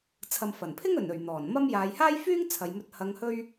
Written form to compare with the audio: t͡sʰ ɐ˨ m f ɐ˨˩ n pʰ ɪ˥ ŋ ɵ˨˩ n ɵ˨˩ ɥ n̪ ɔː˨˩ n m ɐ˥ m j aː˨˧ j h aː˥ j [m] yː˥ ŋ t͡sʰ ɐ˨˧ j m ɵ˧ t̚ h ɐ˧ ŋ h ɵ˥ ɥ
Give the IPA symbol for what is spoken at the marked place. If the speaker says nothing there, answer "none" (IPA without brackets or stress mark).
f